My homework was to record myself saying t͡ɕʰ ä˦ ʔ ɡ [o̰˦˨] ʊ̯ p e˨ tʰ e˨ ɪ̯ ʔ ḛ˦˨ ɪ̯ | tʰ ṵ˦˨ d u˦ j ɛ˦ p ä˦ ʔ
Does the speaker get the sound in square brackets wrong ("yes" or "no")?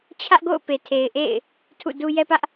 no